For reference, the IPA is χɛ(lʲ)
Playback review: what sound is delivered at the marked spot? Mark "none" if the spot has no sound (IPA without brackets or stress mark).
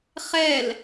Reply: l